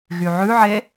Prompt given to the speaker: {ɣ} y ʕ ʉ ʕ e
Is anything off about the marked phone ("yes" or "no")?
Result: no